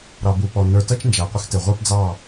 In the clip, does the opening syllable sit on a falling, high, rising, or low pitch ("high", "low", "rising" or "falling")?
low